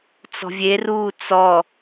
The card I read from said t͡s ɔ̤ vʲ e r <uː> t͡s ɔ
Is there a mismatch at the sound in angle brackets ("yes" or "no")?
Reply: no